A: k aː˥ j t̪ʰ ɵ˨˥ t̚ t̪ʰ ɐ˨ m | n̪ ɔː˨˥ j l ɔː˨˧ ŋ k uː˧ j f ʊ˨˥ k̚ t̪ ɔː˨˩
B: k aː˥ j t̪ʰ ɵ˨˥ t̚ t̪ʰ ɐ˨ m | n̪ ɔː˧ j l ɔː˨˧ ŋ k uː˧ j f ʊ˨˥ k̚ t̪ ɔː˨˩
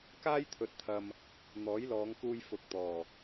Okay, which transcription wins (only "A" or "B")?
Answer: A